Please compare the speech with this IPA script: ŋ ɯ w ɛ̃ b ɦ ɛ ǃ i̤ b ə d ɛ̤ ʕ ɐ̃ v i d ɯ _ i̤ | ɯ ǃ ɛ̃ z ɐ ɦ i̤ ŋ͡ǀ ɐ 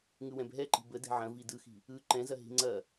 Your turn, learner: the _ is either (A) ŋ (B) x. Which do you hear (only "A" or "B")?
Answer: B